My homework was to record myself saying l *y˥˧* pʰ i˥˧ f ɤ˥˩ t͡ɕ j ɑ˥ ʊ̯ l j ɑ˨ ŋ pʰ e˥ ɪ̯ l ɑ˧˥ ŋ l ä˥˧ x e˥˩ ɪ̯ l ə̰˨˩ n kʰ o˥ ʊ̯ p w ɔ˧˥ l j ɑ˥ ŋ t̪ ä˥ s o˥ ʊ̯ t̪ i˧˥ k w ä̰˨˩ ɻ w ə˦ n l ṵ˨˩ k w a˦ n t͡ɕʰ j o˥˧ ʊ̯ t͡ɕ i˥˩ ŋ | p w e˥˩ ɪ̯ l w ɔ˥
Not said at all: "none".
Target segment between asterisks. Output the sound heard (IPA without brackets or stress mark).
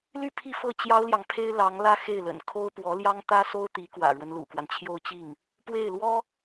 y˥˧